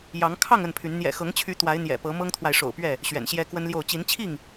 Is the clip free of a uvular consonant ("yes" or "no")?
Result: yes